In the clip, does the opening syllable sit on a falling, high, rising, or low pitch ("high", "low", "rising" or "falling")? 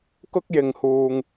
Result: high